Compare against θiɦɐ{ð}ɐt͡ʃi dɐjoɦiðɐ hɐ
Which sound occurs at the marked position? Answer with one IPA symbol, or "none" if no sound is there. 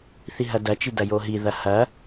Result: d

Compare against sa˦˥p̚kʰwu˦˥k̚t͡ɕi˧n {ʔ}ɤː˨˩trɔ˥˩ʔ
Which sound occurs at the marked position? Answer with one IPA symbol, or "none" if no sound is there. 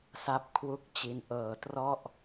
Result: ʔ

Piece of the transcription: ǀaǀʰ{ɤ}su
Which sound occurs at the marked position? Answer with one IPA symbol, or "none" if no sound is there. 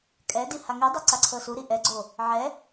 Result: ɤ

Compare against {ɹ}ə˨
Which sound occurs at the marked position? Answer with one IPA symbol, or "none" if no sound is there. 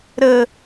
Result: ɾ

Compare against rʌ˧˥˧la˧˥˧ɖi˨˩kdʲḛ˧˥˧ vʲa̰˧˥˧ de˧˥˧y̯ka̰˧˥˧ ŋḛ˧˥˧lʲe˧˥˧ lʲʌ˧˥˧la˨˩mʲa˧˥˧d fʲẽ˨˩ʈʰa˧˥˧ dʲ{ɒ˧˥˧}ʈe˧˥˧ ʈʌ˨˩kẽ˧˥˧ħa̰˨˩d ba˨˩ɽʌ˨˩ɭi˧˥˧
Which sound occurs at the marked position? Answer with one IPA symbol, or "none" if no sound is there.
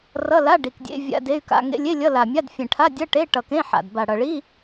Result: ʌ˧˥˧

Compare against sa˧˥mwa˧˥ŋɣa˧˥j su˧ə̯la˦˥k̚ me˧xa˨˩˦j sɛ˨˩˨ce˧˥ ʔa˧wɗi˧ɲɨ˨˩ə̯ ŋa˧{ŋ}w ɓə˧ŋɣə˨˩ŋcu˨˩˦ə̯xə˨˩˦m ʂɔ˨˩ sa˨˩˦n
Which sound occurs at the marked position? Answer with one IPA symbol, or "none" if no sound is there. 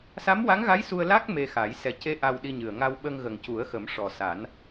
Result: none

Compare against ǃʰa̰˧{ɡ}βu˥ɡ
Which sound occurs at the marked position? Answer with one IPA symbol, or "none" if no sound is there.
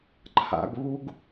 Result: ɡ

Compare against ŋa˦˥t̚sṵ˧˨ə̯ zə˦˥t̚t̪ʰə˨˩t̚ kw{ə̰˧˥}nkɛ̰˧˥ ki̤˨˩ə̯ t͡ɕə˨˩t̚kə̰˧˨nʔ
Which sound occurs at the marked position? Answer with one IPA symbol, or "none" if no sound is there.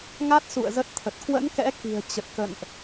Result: ə̰˧˥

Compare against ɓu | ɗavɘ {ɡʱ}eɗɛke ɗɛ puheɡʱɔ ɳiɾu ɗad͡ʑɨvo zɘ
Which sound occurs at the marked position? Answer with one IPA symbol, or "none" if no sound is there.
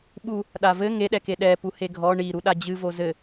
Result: ŋ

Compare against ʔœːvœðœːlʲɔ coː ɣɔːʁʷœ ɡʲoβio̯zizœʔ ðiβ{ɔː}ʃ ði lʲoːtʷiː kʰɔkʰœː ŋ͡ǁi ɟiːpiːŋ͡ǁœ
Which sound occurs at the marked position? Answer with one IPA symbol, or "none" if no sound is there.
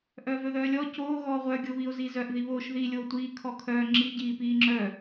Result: oː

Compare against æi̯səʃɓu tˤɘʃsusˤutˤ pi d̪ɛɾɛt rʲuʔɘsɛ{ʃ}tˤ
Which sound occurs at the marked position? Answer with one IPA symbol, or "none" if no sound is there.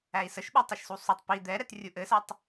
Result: none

